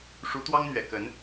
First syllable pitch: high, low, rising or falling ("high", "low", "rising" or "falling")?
rising